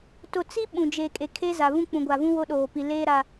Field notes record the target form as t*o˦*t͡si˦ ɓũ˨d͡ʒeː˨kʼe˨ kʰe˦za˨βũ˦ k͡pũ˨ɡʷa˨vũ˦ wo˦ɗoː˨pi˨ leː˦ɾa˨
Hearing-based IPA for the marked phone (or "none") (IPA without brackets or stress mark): o˨